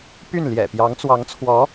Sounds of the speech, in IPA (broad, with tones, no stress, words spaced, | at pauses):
py˥˩n ljɛ̰˨˩pjɑ˧˥ŋt͡swɑ˧˥ŋt͡sʰwɔ˧˥